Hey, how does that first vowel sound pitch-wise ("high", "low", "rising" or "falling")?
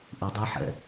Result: low